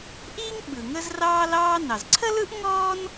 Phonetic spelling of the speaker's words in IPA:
ʔ iː˥ ŋ ɓ ɯ˩ ŋ ə˥ z r ɑː˥ l ɑː˥ n ɑ˩ z ǀʰ ə˥ l ɯ˥ ʔ ŋ ɔː˥ n

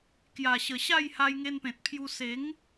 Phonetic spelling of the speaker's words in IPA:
k j a˨˩ ɕ ə˨˩ ɕ a˥˧ j h a˧ j ŋ e˧ n p ẽ˨ t̚ pʰ j u˧ s e˨˦ ŋ

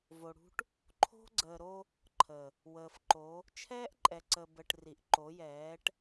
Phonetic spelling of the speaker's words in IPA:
v o˨ ɽ ṳ˦ ʈ | ǃʰ o̤˦ ɡ͡ǀ əː˨ ɾ o˦ | ǃʰ ə˨ | w əː˨ f ǃ o˨˦ | t͡ʃʰ ɛː˦ ʔ ǃʼ ɛ˨ ǀ ə˨ b ə˨ ʈ r i˨ ʔ ǃ o˨˦ j ɛː˨˦ ʈ

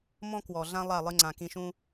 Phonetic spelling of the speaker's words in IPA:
m ɔ̃˦ k w ɔ˨ ɮ ã˦ lˠ a˦˨ lˠ ɨ˧ ŋ͡ǀ ã˨ k ĩ˧ ʃ ũ˦

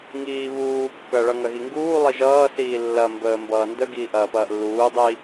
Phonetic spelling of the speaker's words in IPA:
ŋ iː β uː kː ɐ ɭ ʌ ŋ ɐ ɣ i ŋ ɡ uː lˠ i ʒ ʌː s iː lː ɐ m b əː m b ʌː n d ə ɡ iː ʔ ɐː p ɐː ʔ lː uː dˤ i

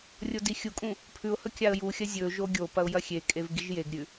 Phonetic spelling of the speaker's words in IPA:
rʲ o d i xʲ u kʼ ũ | pʰ ʉ ʊ̯ h ɵ kʲ a ə̯ j u xʲ ɐ zʲ ɵ ʒ o ɡʲ o p ɐ ʊ̯ j ɐ xʲ e kʼ e v ɡ i ʒ j e ɡ ɾʲ ʉ

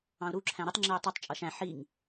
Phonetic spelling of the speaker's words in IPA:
ɑ̃ ʊ̯ ɾ u ǁʰ æ̃ ɾ ɪ tˤ ŋ͡ǁ ɪ ʊ̯ tˤ ʌ tˤ t͡ʃʼ ʌ ʃ æ̃ ħ i ŋ

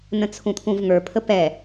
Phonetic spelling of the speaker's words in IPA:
n ə̃ t͡sʰ ũ t̪ʰ ũ v ŋ ə˞ pʰ ə p ɛ

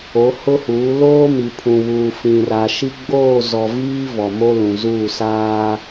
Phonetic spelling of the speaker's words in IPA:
o˨˦ h ʊ˦ h uː˨˦ l oː˦ m i˨ pʰ ũ˨ β uː˨ f ĩ˨ r a˨ ʃ i˦ ɡ͡b oː˦˨ z ɔ˨ v iː˦ v ɔ˨ m o˦ l ũ˨ z uː˦˨ s aː˦

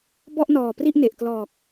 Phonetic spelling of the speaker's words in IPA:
b ɔ˥˩ ʔ n ɔː˨˩ p r i˥˩ ʔ n e˨˩ ʔ k l ɔː˨˩ k̚

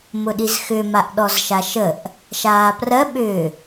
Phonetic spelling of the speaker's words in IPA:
m ʊ ɗ i z x ʏ m a ʔ ɗ ɔ z ʃ a ʃ ə ʔ | ʃ aː p r ɜ ɓ ʏː

